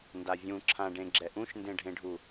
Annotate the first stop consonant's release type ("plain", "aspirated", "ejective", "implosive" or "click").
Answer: plain